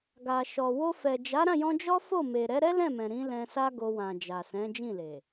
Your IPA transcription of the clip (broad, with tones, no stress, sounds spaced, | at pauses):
ɡ a˨ ʃ ɔ˨ w o˧ f ɛ˨ d͡ʒ a˨˦ ɾ ã˦˨ j ɔ̃˧ d͡ʒ ɔ˦ f o˦˨ m e˨ ɾ ɛ˨˦ ɾ ɛ˦ l ɛ̃˦˨ m ɛ̃˨ ɾ ĩ˨˦ l ɛ̃˧ s a˦ ɡ o˧ w ã˨ d͡ʒ a˨ s ɛ̃˨˦ d͡ʒ ĩ˦˨ l e˨